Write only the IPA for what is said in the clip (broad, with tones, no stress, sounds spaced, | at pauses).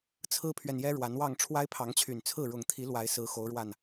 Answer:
t͡sʰ ɹ̩˦ pʰ ɥ ɛ˨ n j ɛ˦ ɻ w a˨˦ n w ɑ˥˨ ŋ ʈ͡ʂʰ w a˦ ɪ̯ pʰ ɑ˨˦ ŋ t͡ɕʰ y˨˩ n t͡sʰ ɹ̩˥˨ ɻ ʊ˨˩ ŋ t̪ʰ i˨˦ l w a˨˦ ɪ̯ s ɹ̩˨˦ x o˨˦ ʊ̯ ɻ w a˨˩ n